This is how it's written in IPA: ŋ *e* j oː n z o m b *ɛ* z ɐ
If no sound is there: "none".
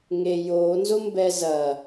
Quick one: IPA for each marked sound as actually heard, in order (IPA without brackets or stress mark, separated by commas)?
e, ɛ